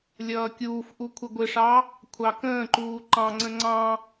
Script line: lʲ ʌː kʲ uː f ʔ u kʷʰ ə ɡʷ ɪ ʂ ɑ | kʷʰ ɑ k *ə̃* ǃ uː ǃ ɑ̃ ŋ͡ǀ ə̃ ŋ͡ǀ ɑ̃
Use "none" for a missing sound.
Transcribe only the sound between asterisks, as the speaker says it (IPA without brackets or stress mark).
ə̃ː